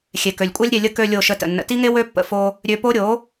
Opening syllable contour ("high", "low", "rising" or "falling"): low